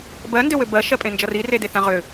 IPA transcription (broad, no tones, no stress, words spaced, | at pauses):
bɜndøwø bɜʃɜpʼẽnd͡ʒʌ riredeθã ʁʏ